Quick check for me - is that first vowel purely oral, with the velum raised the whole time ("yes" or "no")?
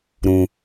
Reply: no